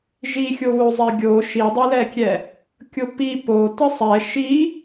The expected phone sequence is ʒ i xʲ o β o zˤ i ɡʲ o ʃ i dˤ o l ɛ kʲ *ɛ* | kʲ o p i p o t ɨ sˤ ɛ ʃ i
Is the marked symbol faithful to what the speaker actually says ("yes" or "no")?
yes